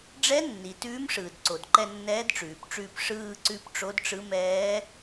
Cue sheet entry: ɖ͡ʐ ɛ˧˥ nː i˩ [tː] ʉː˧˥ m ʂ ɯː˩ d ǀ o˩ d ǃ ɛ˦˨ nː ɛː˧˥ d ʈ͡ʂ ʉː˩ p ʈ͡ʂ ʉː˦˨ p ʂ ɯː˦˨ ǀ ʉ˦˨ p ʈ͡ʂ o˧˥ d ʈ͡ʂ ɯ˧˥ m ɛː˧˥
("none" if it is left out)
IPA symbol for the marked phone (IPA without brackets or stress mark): t